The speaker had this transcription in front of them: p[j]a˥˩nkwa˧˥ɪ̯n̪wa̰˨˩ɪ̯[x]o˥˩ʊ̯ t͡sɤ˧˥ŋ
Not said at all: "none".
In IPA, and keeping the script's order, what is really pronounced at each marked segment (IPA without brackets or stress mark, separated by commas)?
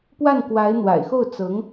w, x